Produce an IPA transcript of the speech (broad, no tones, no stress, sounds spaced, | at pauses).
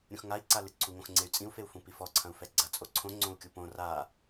ɾʲ ũ x ŋ a i̯ ǀ a l ɨ ǀʰ u ŋ õ x ŋ͡ǀ e y̯ t͡sʼ ĩ u̯ f e u̯ f ũ p i f ɔ ǀʰ ɐ̃ u̯ f ɛ ɡ͡ǀ ɐ t͡sʼ o ǀʰ õ ŋ͡ǀ õ u̯ kʲ u p õ r a